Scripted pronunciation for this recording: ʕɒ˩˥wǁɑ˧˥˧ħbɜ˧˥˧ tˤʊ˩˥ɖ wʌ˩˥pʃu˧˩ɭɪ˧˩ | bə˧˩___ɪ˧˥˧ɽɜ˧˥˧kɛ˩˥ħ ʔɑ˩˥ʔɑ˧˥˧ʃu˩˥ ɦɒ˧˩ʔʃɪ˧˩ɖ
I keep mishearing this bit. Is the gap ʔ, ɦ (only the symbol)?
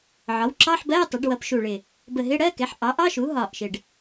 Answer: ɦ